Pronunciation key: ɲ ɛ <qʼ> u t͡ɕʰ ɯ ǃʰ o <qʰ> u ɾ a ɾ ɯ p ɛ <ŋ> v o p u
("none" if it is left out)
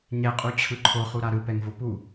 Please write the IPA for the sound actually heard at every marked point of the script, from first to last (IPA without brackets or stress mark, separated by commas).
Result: qʼ, χ, ŋ